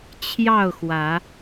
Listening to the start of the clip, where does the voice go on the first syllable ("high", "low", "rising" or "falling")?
falling